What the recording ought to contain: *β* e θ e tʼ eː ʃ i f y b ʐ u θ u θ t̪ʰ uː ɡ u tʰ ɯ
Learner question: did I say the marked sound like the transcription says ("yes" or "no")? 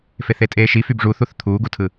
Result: no